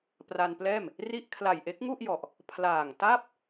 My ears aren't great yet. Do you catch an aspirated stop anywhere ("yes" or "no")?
yes